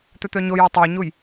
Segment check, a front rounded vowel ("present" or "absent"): present